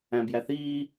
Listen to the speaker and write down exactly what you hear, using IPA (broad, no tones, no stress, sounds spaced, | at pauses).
æ̃ b j æ θ iː